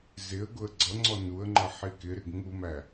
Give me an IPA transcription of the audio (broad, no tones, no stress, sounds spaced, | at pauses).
z ɪ ə̯ ɡ ʊ ə̯ ɡ͡ǀ ʌ ŋ͡ǀ ɔ n u ə̯ ŋ͡ǃ ʌ ħ i k ɪ ɾ ɪ ɡ ŋ u m æ